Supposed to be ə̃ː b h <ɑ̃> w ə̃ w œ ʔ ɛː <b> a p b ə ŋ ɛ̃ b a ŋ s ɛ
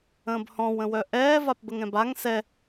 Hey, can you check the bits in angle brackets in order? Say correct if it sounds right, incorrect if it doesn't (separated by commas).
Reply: incorrect, incorrect